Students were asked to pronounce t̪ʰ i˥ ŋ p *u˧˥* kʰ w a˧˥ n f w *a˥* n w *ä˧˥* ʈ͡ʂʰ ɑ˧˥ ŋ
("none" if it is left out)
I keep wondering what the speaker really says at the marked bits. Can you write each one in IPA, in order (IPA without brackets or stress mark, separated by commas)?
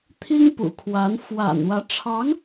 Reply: ṵ˨˩, a̰˨˩, ä˧˥